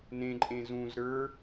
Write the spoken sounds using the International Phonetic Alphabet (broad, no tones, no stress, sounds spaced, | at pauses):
n ẽ ǃʼ ẽ z ũ z ɾ ə˞